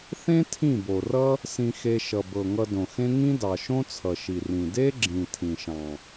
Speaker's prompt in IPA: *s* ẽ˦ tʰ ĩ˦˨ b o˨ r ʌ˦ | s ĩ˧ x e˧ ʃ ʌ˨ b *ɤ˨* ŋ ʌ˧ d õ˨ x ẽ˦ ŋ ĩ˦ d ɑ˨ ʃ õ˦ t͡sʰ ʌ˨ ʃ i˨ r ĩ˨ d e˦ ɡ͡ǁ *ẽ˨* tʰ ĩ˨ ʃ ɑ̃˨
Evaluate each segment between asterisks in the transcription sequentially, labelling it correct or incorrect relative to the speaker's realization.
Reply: incorrect: θ, correct, incorrect: ĩ˨

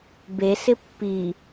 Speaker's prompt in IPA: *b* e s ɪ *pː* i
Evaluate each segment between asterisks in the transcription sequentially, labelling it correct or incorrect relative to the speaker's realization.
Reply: correct, correct

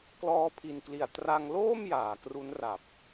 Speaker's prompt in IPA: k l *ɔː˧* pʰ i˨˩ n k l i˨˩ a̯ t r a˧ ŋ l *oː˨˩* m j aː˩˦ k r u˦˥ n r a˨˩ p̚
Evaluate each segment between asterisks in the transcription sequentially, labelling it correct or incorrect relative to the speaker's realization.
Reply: correct, incorrect: oː˥˩

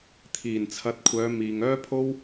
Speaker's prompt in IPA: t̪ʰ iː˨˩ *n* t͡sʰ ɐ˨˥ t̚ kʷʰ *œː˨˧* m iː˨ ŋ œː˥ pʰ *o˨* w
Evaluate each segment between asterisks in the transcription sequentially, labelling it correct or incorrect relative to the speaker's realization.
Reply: correct, correct, incorrect: o˥

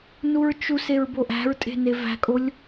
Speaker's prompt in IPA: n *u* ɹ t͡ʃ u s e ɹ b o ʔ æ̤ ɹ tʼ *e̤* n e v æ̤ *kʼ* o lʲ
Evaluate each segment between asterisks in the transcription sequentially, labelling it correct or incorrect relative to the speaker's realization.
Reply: correct, correct, correct

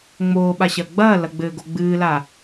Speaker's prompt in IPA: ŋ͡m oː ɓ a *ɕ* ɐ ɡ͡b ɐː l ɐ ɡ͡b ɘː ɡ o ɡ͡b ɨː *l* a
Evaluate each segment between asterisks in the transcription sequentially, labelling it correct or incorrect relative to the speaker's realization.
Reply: correct, correct

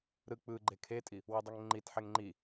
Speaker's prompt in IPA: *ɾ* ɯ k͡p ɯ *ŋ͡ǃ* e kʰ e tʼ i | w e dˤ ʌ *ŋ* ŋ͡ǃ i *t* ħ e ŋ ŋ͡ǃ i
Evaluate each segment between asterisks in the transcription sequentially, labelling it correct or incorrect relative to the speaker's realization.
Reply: correct, incorrect: ɡ͡ǃ, correct, correct

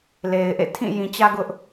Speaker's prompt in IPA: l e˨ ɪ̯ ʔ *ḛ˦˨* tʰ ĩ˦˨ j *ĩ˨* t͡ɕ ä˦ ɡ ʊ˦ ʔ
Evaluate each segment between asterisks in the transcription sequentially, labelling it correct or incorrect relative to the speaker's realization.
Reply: correct, correct

